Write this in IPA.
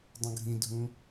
dˤũɡʱĩdʱũ

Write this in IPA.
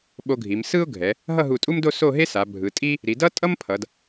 ɓo˧ɡʱi˩˧m sɯ˥ʊ̯ɡʱɛ˩˧ | ɦʌ˥˧ɦu˧˩tʼu˥mdo˥˧ so˥˧ɦe˥sa˩˧ bʱɯ˩˧ tʼi˥ | ɾi˩˧dʌ˥ tʼʌ˥mpʰʌ˩˧d

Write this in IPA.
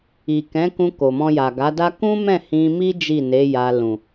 i˨kɛ̃˨˦kũ˧ ko˨mɔ̃˧ja˨ ɡa˨˦da˦ kũ˦mɛ̃˦˨ hĩ˧mi˦ d͡ʒi˦˨ne˨˦ ja˧lũ˨

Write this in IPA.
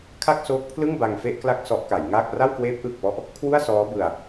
kʰa˥˩k̚soː˦˥k̚pʰlɯ˥˩ŋ ba˧ŋfe˥˩ʔkla˥˩k̚ sɔ˦˥ʔka˩˦jŋaː˥˩k̚ ra˥˩wkweː˦˥p̚ʔɯː˨˩k̚pɔ˦˥ʔ | kʰwu˥˩a̯sɔː˦˥ bɯ˧a̯

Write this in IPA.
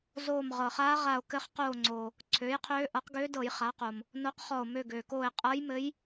zoː˧˩m ʁɤ˩χaː˧˥ʁa˧˩o̯ kɘ˧˥χ qoː˧˩ŋ͡ǀoː˩ | ǀʰøː˩˥jqʰøː˧˥ ʔɤ˩˥qɡøː˧˥dɤ˧˩˧j χa˩˥qo˩m | no˧˥qχɔ˧˩o̯ mø˧˩ɡøː˩koː˧˩e̯ qʼɤ˧˥jmɘ˧˥j

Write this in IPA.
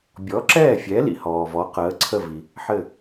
bʲɔ˩˥ǁɛː˥˩fʲɛ˩˥ lḭ˩hɔː˩vɔ˩˥ qəː˩˥ǀʰə˥˩vi˩ | ħɘ˥˩

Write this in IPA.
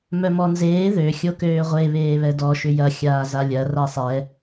mœmɔnzeː ðø xʲokøːʁʷe βeːβɛdɔ ʃʏjɐ xʲaːzalʲɐ rasˤɛ

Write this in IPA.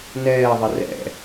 nɛːðˤɪ rɛ̰

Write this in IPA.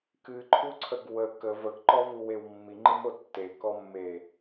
kɨǃʰuǀʰəɡ wə kəv əɡǃɔvuwew mːiŋ͡ǃɨmo tːekɔmːe

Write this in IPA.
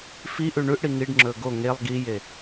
fi ʔʉɳʉʔɽi ŋiɖŋ͡ǁɵ ɡo ŋelˠ ɡije

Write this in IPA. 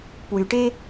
pwyʈe

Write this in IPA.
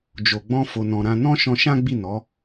d͡ʒo˨ɡ͡bɔ̃˧ fo˨nɔ̃˨ɾã˧ nɔ̃˦ ʃɔ̃˧ʃã˦ɡ͡bi˦˨nɔ˨˦

